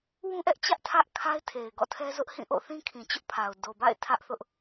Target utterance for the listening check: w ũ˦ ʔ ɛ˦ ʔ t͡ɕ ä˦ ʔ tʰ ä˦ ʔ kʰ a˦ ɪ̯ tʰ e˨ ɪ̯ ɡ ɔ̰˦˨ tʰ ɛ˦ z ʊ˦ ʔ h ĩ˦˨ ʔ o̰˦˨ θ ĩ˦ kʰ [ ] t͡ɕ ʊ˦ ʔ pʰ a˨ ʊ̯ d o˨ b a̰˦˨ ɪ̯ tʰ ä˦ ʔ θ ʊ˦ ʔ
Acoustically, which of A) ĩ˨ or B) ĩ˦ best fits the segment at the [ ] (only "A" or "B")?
A